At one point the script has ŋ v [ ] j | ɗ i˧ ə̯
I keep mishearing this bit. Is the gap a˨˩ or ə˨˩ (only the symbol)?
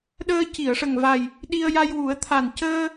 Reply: a˨˩